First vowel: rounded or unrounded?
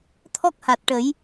rounded